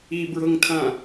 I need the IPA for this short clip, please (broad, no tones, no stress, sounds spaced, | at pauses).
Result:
i b ɹ ɤ ŋ tʰ ã